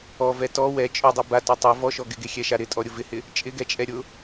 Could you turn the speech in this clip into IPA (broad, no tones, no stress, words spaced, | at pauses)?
ɔvɛ tɔ wɛ t͡ʃʼʊdˤɛ batʊ tˤɛ vɔʃɔ ɡɪɡexʲɛʃa ɾɪtʼɔɾʲʊ vɪhɪ | t͡ʃʼɪɡɛt͡ʃʼɛ ɾʲʊ